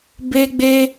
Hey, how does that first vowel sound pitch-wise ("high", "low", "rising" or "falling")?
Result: high